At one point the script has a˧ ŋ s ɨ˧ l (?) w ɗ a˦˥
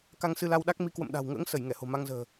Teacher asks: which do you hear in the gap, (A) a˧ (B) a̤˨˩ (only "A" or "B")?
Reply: A